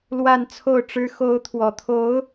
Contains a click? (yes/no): no